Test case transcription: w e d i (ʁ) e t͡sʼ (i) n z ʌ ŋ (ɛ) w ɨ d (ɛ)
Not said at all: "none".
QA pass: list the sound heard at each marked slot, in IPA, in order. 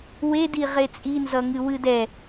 ʁ, i, ɨ, ɛ

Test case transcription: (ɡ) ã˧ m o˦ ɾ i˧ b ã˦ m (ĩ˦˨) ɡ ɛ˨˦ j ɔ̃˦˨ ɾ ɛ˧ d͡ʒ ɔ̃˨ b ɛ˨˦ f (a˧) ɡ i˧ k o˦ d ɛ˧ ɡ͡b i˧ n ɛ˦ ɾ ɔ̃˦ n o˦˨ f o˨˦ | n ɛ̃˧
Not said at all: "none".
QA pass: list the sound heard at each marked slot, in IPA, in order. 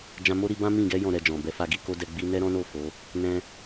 d͡ʒ, ĩ˦˨, a˧

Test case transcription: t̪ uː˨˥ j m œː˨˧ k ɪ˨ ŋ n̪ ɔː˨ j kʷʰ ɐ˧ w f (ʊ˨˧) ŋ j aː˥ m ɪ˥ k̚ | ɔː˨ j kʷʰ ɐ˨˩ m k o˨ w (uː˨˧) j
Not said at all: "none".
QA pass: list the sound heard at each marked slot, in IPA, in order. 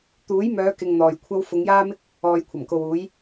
ʊ˨˧, uː˨˧

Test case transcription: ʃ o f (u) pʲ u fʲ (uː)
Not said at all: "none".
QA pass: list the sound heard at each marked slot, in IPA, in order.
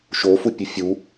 u, u

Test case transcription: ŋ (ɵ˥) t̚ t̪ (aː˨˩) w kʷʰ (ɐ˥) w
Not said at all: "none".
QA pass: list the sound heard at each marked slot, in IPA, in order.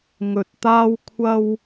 ɵ˧, aː˥, ɐ˥

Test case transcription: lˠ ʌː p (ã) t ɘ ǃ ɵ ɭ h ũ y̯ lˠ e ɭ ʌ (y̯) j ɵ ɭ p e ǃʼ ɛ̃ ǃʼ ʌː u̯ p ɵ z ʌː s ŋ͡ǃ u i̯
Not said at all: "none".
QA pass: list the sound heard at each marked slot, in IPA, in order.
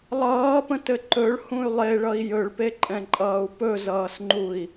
ə̃, i̯

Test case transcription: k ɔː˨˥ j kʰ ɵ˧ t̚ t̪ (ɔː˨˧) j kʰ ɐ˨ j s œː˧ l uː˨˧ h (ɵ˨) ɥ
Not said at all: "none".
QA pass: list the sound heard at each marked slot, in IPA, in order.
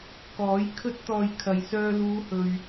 ɔː˨, ɵ˨

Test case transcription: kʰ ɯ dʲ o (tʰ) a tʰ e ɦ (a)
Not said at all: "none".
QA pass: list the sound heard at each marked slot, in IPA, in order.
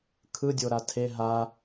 ɾ, a

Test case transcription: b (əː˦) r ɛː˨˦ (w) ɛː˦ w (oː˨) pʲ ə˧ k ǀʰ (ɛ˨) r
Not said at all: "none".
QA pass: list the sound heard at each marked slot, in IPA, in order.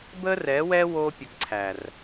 əː˦, w, oː˦, æ˨

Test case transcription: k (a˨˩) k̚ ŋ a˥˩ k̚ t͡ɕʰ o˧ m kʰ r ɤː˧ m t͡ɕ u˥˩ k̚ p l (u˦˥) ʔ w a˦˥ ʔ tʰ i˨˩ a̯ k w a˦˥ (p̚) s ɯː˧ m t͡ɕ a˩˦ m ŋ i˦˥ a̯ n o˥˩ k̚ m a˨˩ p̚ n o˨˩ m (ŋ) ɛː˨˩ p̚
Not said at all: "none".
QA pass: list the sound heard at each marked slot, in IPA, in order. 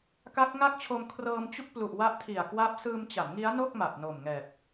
a˦˥, u˨˩, p̚, ŋ

